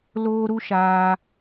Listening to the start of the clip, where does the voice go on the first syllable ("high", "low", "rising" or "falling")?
high